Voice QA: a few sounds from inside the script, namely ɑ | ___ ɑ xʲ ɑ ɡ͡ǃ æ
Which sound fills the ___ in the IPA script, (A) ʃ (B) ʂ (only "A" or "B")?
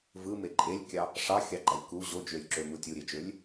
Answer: B